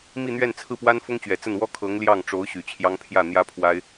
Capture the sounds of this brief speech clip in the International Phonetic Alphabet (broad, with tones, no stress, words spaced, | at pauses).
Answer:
mi˥˧n̪ɥɛ˥˧nt͡sʰɹ̩˥˩pwa˥n fʊ˥ŋt͡ɕɥɛ˨˩t͡sə˥˩n wɔ˥kʰɤ˧˥ŋ ljɑ˥˩ŋʈ͡ʂo˧˥ʊ̯ɕy˨˩ t͡ɕʰjɑ˥ŋ pʰjä˥˩n̪jä˥pʰwa˥ɪ̯